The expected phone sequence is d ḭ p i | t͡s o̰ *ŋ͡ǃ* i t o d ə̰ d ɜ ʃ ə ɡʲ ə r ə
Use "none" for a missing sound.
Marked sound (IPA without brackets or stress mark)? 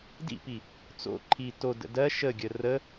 ǃʰ